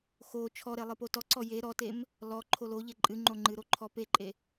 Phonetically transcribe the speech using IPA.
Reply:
x o t͡ʃʰ ɔ ɾ e lˠ ɨ p o t ɔ ǀ ɔ j e ɾ ɔ t e m | l ɔ ǃʰ o l o ʎ e ǃʼ ɨ ŋ͡ǃ o ŋ͡ǃ ɨ ɾ o ǃʰ ɔ p e ǃʼ e

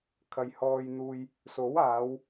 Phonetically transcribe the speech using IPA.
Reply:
kʰ ɐ˨ j h ɔː˧ j n̪ uː˧ j | s o˨˥ w aː˨˧ w

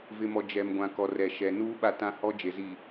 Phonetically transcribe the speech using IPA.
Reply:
v ɪ˨ m ɔ˨ d͡ʒ ɛ˨ m ɡʷ ã˨ k ɔ˨ r ɛ˨ ʃ ɛ˨ n uː˦ ɓ a˦ t ã˦ h ɔ˦ d͡ʒ e˨ z i˨

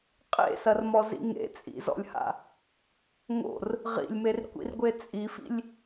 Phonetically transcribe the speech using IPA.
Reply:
qʼ ḛ s ɐ r m ɔ z ḭ ŋ ḛ t͡sʼ ḭ z ɔ̰ lʲ h a̰ | ŋ o̰ r | ʁ ḭ lʲ m e r kʷ ḭ r ɡʷ e t͡sʼ i f ḭ lʲ

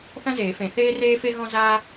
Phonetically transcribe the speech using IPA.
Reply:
θ ɐ̃˥ z eː˨˩˦ f ẽ˨ θ eː˥ r eː˥ f e˥ ɣ ɔ̃˥ z aː˥

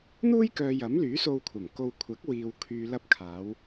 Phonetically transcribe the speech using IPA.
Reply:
n̪ uː˥ j k œː˨ j ɐ˨˥ m l yː˨˥ s o˧ w kʷʰ ɐ˨˩ m k o˧ w kʷʰ ɐ˨˥ k̚ w iː˨ w kʰ yː˨ l ɐ˧ p̚ kʰ aː˨˧ w

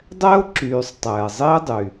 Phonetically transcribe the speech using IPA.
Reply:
dˤ ɛ˥ o̯ ǁ yː˨ sˤ tˤ ɛː˩ zˤ i˥ e̯ dˤ y˨

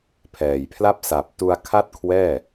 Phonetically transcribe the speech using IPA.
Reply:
pʰ ɛː˨˩ j pʰ l a˥˩ p̚ s a˨˩ p̚ t u˧ a̯ kʰ a˥˩ t̚ kʰ w ɛː˥˩

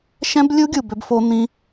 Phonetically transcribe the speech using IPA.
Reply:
ʃ ɛ̃˦ b lʲ u˦ ɡʲ u˨ b ø˧ b f o˧ n̪ ĩ˦

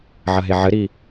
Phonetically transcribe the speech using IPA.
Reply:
ʕ ɐ ɦ e ʕ ɘ ɾ i

